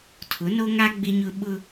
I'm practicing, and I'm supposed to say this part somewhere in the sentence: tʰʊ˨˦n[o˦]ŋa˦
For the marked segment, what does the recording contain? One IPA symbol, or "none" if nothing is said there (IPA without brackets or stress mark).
o˦